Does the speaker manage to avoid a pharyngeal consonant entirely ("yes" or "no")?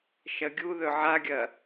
no